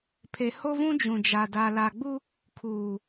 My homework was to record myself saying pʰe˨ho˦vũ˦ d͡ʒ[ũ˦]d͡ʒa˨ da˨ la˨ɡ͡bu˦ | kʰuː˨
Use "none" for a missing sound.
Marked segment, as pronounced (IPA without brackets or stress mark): ũ˨